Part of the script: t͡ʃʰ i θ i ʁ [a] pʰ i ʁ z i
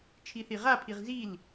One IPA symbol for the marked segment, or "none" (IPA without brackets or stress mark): a